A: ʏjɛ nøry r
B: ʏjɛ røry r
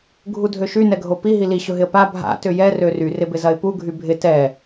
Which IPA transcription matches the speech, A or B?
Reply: B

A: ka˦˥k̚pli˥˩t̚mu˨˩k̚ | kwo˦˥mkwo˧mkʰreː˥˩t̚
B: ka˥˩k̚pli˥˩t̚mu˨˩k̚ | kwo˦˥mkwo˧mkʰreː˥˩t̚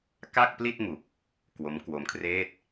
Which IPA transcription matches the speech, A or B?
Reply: B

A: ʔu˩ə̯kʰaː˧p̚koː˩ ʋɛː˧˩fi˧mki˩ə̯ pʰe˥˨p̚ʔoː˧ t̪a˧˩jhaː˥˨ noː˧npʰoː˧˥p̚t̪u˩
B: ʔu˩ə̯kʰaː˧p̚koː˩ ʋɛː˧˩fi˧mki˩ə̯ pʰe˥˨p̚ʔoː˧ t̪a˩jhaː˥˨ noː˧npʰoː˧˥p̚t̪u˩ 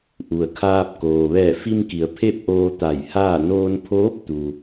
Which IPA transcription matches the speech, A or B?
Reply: A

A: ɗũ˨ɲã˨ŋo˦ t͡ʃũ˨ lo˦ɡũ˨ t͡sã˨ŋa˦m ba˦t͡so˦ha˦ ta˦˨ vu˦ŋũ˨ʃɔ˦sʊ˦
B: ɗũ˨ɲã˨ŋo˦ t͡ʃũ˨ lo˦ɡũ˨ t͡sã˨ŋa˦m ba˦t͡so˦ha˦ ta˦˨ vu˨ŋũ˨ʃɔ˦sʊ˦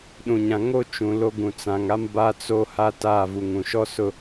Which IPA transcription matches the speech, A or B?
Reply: B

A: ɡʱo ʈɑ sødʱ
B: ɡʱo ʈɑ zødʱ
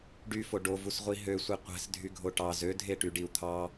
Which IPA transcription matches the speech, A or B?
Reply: B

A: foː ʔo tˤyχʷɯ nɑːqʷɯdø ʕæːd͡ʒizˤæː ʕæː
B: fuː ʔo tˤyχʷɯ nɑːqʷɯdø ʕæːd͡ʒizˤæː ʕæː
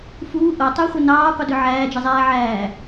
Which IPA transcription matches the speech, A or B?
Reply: B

